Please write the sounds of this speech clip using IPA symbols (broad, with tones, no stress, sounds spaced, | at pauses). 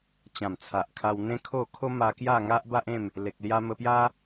t͡ɕ ã˨˩ m t͡sʰ a˨ ʔ kʰ a˧ w n̪ ẽ˦ kʰ o˥˧ kʰ o˦ m a˧ k j a˥˧ ŋ a˦ ʔ b a˦ ʔ ẽ˥˧ m | l e˨ k̚ l j a˧ m ə˧ p j a˦